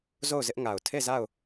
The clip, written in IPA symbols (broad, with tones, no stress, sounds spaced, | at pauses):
z o˦˨ ʊ̯ z ɪ˦ ʔ ŋ a˨ ʊ̯ tʰ e˦˨ z a˦˨ ʊ̯